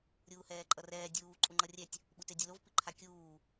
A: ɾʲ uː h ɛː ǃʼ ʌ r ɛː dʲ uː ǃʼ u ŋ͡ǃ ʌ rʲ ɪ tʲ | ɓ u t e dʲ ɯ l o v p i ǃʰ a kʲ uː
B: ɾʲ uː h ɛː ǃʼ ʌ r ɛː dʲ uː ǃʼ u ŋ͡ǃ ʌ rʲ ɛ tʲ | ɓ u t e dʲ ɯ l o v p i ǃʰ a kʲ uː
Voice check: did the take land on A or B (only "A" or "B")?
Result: B